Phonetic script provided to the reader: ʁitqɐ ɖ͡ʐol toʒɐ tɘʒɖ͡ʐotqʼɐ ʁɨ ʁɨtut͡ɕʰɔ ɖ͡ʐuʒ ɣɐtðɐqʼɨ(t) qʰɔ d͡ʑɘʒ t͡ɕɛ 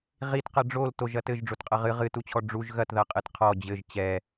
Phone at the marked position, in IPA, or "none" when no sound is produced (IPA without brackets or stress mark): t